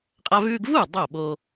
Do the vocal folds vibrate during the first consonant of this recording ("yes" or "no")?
no